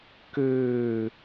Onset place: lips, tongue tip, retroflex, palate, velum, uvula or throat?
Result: velum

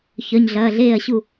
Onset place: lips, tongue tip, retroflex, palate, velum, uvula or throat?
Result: palate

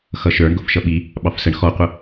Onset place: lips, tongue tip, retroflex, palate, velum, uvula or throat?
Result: velum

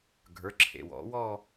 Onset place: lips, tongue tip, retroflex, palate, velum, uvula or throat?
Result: velum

